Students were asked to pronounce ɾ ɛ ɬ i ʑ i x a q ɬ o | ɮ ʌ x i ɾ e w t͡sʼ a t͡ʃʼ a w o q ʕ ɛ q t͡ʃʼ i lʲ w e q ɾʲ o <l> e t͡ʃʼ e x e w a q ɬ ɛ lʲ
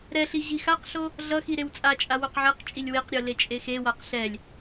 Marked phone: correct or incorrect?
correct